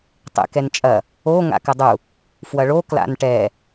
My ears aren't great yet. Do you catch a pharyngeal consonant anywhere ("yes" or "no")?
no